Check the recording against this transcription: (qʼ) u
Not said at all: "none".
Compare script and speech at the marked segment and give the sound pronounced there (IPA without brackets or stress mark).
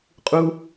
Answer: qʼ